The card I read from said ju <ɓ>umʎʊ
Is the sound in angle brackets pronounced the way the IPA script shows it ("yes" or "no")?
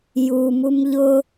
no